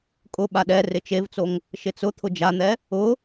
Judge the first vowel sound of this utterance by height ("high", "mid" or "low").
high